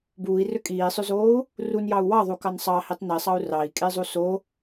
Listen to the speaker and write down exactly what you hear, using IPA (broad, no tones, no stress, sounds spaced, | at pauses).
b uː i̯ r ø kʼ iː sˤ ø z oː u̯ | r u n j ɑ u̯ w ɑ ðˤ u k ɑ n sˤ ɑ h i tˤ n i sˤ ɑ u̯ r ɑ i̯ kʼ e zˤ u s o